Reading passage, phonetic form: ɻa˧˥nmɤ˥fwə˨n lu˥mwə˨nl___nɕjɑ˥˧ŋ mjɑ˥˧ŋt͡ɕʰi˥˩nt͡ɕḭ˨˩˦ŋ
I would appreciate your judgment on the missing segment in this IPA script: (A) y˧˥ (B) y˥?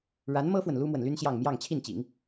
B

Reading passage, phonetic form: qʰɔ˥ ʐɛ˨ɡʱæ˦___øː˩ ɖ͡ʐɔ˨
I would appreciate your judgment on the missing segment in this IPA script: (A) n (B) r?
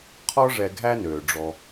A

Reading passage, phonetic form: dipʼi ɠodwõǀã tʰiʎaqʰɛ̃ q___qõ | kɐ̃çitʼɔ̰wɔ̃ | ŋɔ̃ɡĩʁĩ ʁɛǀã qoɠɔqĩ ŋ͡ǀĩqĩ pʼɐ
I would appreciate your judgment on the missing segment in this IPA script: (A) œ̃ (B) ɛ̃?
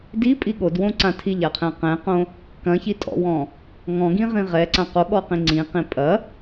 B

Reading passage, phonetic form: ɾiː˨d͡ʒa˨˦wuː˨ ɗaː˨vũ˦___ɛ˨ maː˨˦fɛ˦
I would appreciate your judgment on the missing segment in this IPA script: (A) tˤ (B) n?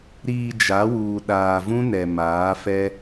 B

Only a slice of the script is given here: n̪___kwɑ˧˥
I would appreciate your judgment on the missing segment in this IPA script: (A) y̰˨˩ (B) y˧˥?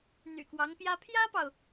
A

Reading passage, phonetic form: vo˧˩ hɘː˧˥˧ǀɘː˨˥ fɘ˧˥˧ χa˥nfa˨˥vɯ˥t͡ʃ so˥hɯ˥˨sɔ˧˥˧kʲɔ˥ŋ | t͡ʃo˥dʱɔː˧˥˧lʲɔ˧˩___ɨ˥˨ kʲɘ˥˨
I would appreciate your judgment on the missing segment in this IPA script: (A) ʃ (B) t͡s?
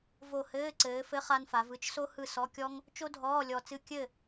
B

